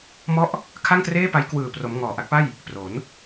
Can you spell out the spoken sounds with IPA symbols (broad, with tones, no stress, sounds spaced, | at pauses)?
m ɔ˦˥ ʔ | kʰ a˥˩ ŋ t r eː˥˩ p a˦˥ j k w ɯː˨˩ p r o˩˦ m ŋ ɔː˨˩ ʔ a˦˥ k̚ p a˥˩ j | p r o˩˦ n